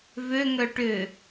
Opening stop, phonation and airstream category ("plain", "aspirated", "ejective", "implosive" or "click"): plain